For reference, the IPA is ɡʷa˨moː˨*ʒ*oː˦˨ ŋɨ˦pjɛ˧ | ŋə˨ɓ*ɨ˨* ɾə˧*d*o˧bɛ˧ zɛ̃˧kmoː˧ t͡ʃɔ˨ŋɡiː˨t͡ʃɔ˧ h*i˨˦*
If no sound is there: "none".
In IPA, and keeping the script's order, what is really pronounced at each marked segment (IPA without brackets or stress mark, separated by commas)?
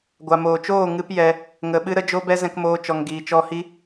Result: t͡ʃ, ɨ˧, d͡ʒ, i˧